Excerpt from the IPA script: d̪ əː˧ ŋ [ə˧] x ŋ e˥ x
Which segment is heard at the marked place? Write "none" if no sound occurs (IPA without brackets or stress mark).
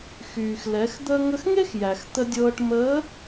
ə˧